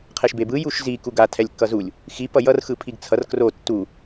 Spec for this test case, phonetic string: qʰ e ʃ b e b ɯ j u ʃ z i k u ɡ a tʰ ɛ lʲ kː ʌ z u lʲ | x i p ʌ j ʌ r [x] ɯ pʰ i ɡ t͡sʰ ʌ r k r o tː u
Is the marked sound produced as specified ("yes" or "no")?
yes